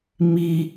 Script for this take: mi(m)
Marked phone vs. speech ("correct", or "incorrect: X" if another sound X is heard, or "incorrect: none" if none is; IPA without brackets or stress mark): incorrect: none